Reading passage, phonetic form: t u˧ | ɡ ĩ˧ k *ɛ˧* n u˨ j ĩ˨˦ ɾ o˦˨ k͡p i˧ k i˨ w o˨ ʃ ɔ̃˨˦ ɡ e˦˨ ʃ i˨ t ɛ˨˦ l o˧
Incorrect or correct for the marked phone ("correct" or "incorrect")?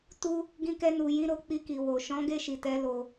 correct